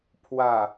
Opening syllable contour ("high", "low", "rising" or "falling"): low